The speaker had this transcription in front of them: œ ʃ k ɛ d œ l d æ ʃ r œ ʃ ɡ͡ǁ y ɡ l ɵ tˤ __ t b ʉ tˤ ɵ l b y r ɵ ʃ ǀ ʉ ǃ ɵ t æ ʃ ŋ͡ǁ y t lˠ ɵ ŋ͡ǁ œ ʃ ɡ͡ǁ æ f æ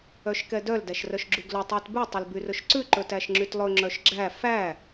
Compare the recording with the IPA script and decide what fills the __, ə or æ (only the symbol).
æ